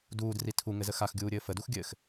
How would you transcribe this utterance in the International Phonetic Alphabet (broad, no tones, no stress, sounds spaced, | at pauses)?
d uː d r i tʰ u ŋ ɘ z ə x a x ɡʲ uː ɾʲ ɘː f ə d u x ɡʲ ɘː x